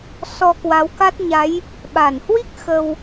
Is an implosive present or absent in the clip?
present